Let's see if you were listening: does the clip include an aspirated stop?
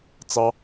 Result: no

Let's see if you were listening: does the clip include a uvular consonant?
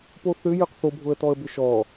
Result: yes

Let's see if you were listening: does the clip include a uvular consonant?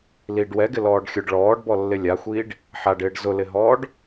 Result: no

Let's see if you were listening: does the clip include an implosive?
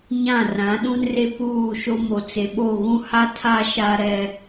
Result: yes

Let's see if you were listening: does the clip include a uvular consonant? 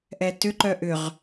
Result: yes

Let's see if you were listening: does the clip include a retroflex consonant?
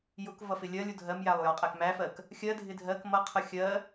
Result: no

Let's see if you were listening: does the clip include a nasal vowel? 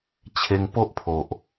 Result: no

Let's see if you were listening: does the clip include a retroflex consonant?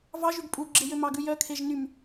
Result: no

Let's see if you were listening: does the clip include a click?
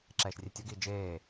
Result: yes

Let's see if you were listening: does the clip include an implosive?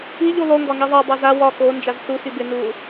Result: no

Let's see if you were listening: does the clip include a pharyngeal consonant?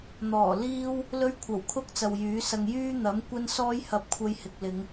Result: no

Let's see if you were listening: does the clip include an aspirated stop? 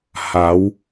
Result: no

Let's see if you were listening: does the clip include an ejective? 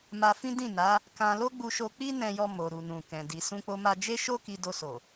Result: no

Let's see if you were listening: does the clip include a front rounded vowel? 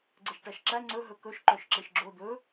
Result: yes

